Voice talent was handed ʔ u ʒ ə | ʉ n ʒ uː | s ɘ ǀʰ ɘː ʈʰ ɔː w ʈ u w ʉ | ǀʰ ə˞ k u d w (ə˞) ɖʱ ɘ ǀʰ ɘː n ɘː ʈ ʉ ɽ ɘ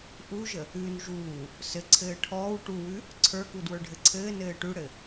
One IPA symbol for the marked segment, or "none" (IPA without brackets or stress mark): ə˞